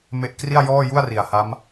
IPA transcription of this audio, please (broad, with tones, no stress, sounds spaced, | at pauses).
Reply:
m e˥˩ ʔ k r i˥˩ a̯ j ɔː˥˩ j u˥˩ a̯ r i˨˩ a̯ h a˦˥ m